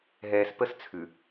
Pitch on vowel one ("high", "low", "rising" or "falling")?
low